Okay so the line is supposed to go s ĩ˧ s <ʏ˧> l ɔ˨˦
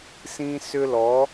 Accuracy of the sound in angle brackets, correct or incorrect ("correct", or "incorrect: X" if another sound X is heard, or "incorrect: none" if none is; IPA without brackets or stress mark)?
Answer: correct